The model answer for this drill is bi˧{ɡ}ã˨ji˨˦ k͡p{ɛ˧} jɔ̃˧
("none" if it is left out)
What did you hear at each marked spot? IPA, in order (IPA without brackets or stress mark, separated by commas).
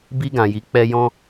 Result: ɡ, ɛ˧